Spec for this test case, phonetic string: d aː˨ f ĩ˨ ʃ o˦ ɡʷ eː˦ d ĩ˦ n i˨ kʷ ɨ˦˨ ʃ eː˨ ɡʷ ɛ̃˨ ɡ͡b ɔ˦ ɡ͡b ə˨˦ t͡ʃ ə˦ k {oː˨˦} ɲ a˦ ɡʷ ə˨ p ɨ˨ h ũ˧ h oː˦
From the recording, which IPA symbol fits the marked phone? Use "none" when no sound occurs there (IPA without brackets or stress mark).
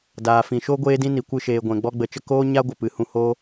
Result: oː˦